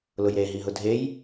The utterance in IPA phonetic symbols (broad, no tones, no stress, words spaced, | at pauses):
lʊjɾeɦiɦʊ dʱej